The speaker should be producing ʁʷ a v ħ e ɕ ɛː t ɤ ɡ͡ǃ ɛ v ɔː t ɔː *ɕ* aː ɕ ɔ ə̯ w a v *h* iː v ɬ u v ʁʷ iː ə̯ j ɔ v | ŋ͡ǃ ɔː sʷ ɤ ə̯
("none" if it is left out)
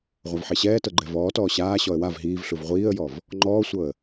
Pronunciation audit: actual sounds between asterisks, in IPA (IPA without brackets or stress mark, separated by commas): ɕ, ɦ